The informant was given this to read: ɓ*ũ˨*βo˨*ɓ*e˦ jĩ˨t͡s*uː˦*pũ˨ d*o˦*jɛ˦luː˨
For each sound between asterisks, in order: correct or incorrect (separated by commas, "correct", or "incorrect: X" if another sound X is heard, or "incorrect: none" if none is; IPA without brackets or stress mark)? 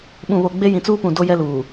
correct, incorrect: ɡ͡b, correct, correct